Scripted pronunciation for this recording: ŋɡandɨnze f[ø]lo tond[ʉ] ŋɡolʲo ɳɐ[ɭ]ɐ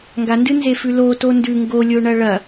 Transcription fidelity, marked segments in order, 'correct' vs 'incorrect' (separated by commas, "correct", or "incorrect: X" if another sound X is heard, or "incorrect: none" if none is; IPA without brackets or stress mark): incorrect: ʉ, correct, correct